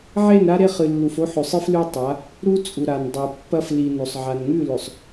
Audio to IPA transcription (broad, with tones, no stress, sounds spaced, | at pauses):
ʕ e˦˨ n ɾ a˦ ɾ e˦˨ χ ɨ˨ lː u˨ f o˦ ħ ɵ˨ sˤ ɨ˦ f l ʉ˦ tˤ a˨˦ | ɾ u˦ t͡sʼ u˨ ɾ a˨ n dˤ o˨ pː ɐ˦ f l i˨ n o˨ sˤ ʕ a˨ n ŋ ʉ˦˨ l ɵ˨ sˤ